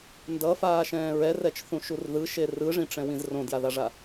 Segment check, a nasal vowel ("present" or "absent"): present